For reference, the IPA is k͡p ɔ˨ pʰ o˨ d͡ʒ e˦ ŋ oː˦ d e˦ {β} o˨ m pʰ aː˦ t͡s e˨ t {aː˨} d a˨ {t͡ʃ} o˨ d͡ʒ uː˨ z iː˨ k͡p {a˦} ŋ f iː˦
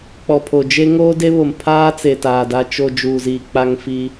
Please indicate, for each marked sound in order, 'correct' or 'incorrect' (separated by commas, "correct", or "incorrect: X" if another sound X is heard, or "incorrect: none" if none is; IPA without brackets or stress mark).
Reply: correct, correct, correct, correct